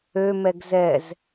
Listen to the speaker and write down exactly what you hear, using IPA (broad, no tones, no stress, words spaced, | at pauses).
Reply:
ømɛɡ zɛz